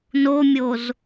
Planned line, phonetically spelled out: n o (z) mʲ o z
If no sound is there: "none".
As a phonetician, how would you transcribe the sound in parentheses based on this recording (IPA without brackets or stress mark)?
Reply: none